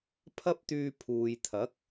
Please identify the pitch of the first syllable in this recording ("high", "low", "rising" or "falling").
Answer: high